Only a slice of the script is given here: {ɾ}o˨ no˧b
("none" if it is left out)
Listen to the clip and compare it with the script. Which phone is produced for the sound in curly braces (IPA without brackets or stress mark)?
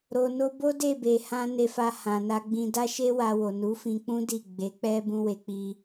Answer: ɾ